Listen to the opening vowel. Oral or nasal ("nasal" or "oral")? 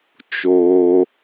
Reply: oral